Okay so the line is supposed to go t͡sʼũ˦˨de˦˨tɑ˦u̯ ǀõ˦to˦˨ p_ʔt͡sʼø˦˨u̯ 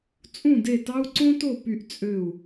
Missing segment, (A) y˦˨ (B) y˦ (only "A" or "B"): A